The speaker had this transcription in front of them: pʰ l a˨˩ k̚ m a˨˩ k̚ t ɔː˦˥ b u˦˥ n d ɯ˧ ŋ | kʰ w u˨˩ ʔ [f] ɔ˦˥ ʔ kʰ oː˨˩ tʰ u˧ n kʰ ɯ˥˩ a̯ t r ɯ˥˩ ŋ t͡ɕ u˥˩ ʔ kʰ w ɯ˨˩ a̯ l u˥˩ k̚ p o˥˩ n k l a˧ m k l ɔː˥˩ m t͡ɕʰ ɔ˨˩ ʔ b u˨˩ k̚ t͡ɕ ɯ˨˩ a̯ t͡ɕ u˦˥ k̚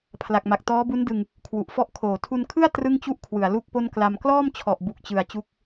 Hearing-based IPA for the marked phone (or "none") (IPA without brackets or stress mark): f